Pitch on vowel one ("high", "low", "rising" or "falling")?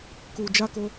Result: low